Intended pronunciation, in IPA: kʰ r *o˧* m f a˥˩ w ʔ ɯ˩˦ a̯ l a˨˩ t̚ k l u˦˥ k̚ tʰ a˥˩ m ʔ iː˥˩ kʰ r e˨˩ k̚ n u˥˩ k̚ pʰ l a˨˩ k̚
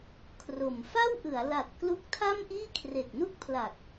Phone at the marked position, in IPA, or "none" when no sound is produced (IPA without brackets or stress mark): o˨˩